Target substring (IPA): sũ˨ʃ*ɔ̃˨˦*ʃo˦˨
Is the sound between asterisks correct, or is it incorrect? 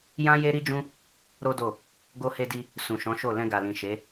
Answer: correct